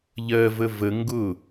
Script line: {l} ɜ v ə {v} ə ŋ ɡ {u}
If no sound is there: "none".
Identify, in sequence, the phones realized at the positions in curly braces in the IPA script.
ʎ, v, ʊ

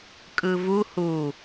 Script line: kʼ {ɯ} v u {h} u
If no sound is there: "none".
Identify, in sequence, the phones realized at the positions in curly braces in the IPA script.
ɯ, h

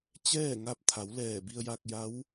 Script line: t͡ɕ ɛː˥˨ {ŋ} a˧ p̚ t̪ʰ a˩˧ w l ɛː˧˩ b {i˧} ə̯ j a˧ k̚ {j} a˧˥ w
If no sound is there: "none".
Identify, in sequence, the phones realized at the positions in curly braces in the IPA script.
ŋ, i˧, j

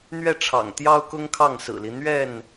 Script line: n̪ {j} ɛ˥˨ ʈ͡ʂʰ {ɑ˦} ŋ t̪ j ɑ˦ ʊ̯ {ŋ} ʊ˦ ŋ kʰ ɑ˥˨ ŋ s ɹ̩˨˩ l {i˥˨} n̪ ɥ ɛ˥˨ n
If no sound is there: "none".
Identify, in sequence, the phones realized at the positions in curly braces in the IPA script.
ɥ, ɑ̰˨˩, k, i˦

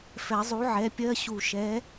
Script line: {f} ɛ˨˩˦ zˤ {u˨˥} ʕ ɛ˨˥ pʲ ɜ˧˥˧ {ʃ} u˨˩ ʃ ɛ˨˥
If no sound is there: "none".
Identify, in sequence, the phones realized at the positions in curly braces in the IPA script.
f, u˨˥, ɕ

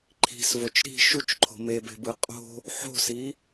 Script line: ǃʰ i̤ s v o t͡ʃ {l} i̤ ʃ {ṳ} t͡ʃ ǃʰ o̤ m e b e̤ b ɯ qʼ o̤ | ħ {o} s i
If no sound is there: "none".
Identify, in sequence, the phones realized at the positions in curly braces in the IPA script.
ɾ, u, o̤

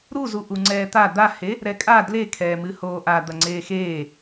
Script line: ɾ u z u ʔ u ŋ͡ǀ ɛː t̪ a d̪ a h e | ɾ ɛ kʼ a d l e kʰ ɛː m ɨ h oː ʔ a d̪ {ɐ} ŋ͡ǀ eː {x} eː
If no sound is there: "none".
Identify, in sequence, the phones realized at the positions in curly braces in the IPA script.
ɐ, x

